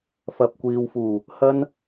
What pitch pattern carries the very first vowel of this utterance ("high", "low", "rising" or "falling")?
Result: low